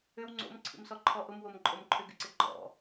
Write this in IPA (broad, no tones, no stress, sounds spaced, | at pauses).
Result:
ʏ w ŋ͡ǀ o̰ m ǀʰ ḭ m s ɔ ǃʰ ɔ ʔ ʊ m w o m ǃʼ o m ǃʰ ʏ ɡ ɪ ǀ ɪ ɡ͡ǃ ɔ̰